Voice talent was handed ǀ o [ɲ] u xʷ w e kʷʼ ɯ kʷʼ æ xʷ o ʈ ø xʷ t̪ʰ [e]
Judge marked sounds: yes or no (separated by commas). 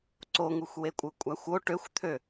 no, no